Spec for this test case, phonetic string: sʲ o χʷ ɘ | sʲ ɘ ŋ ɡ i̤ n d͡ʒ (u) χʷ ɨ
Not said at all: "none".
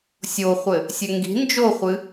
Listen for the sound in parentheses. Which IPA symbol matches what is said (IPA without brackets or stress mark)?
o